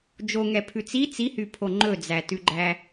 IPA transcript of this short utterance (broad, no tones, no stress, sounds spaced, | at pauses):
d͡ʒ o ŋ ɛ pʰ ʉ t͡s i t͡s i h y pʰ o ŋ͡ǃ ɵ d͡z æ t ʉ ɡ͡ǃ æ